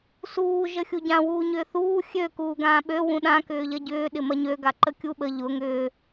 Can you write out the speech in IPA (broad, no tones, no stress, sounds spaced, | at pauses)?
s uː ʒ ə xʲ u ɟ ã w uː ɲ ʏː θ uː xʲ ø k uː ɡ ãː ɓ ø w ũ ɗ ã k ʏː ʎ ɐ ɟ ʏː ɗ ɪ m ɐ ɲ ø ɡ a ǃ ə kʲ u ɓ ə ʎ ʊ ŋ ʏː